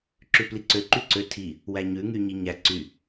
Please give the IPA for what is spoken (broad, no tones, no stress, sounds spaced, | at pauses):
ǁ ʉ p l i ǀ ø ǃ y ǀ ø tʰ i | w æ ɲ ʉ ŋ y ɲ i ɲ æ ǀ y